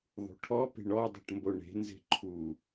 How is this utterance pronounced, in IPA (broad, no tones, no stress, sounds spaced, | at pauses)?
ðˤ ṳ ʈʰ ɔ p e̤ ɳ ɔ dˤ o̤ ʈ m b o ɳ e̤ n z e̤ ǃʰ u